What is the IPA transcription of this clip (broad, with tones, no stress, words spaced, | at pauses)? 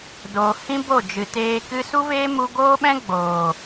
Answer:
doː˨hĩ˦bo˦˨d͡ʒɨ˨ teː˧ kɨ˧su˦ veː˦mu˧ɡoː˦ɓɛ̃˦ ɡ͡boː˨